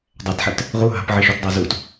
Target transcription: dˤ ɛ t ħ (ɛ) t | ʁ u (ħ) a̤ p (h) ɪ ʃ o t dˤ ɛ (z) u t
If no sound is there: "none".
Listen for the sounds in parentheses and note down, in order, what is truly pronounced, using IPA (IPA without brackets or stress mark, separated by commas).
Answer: ɛ, ɦ, ʕ, z